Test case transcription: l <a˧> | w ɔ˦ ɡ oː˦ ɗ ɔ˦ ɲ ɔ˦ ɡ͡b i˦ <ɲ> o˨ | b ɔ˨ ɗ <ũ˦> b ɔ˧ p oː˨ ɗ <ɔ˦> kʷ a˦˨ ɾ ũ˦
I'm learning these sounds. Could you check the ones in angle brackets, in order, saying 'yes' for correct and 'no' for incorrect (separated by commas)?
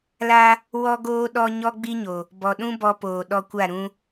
no, yes, yes, no